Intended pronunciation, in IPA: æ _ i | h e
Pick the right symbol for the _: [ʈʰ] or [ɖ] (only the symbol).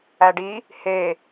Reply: ɖ